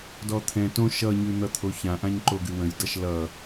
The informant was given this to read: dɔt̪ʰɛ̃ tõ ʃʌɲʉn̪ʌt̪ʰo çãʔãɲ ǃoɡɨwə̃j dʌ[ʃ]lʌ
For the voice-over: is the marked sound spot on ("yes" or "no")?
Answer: yes